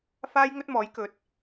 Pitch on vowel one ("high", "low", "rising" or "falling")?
high